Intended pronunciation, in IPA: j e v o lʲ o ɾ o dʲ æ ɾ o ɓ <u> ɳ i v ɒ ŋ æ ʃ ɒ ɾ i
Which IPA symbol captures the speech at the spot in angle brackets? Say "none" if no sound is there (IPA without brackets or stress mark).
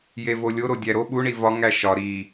u